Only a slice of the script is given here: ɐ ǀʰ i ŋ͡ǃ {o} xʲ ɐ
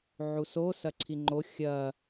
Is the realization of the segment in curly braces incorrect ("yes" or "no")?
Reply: no